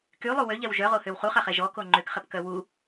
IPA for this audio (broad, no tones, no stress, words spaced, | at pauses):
kylˠu wøʎɛw ʒœʁohøw χuχaχɛ ʒɔko ŋ͡ǃøkχɛpkœ wu